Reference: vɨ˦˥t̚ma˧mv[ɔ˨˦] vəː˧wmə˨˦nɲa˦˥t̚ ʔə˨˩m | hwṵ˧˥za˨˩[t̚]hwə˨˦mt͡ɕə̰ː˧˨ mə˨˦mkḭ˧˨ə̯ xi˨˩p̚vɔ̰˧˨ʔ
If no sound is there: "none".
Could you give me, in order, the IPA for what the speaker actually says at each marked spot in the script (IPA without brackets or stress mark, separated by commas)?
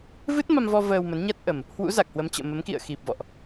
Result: ɔ˧, k̚